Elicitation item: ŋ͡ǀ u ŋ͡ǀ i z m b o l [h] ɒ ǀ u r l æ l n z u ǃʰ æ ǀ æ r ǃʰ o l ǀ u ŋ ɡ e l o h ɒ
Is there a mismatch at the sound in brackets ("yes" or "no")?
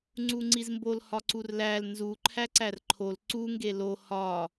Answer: no